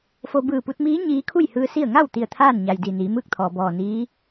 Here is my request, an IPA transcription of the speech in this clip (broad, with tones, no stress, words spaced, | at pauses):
fo˧ bɯː˧˩pu˧t̚miː˧˥ ɲiː˧˥ kʰu˥˨jhɯː˧ si˥˨ə̯ ŋa˥˨wt̪i˧˩ə̯ t̪ʰaː˥˨nɲa˩j di˧˩niː˩˧ mɯː˥˨k̚t̪ʰɔː˩bɔː˧˩ niː˧˥